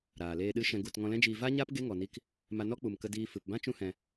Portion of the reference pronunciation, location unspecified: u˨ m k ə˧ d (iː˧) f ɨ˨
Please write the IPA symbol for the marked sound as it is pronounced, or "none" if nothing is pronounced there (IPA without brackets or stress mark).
iː˧